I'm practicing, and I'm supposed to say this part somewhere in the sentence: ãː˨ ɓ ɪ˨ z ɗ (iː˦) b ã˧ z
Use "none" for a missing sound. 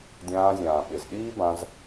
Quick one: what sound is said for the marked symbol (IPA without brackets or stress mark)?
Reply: iː˦